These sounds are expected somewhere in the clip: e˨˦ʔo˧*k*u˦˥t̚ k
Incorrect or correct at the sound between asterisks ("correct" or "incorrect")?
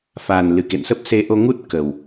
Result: incorrect